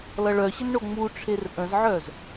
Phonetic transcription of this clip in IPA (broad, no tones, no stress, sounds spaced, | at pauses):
l ʌ ɭ œ ɕ ə n ɳ o ŋ͡m u ʈ͡ʂʰ e r ʔ ə̃ z ʕ œ z